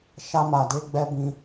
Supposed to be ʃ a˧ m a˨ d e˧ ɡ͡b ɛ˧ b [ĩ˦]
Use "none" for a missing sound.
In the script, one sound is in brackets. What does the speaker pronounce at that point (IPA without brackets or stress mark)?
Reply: ĩ˦